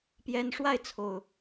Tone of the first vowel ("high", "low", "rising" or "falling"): high